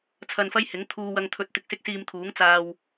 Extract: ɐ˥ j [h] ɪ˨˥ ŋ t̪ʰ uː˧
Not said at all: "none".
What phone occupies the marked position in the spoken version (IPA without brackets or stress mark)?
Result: h